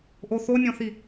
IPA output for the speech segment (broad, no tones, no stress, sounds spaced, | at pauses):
ʔ o θ o nʲ ɔ̃ θ i